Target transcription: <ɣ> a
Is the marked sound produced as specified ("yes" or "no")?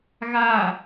yes